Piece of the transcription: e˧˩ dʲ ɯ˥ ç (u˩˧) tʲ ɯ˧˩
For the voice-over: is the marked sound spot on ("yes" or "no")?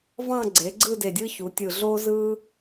yes